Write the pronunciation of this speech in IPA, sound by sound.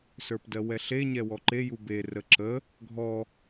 s ə˞ p d ɜ w ɛ ɬ e ɲ ɛ w ɔ ǃ e j u b e r ə ǁ ə | ɡʱ ɔ

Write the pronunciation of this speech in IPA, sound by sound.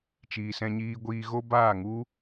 t͡ʃ iː˨ s ɛ̃˧ ɲ iː˧ ɡʷ iː˧ ɣ o˦ b aː˦˨ ŋ u˦

